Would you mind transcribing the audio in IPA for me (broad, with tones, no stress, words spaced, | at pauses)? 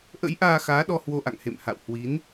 ʔə̰˧˥jʔaː˧ xaː˨˦ɗɔ˧ hwo˧ʔa̰˧˨ŋ hḛ˧˨mha̰˧˨whwi˨˦n